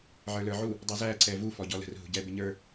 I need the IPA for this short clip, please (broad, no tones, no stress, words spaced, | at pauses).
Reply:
ʕə˞lə˞ʕu | dˤʊzæ ǀɛvu fɔɟɔlə̤r ɦṳɟɛ bɪɲə˞